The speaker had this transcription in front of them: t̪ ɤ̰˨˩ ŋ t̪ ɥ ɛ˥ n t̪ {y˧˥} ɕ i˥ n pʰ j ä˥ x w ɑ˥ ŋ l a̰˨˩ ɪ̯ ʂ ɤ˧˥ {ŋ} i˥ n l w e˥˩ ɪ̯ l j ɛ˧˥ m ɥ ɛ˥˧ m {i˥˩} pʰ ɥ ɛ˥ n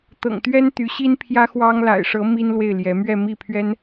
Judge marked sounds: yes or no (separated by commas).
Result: yes, no, yes